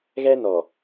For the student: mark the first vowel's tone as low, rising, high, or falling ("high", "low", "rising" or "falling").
high